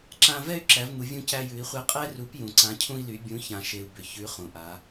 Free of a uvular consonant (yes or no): no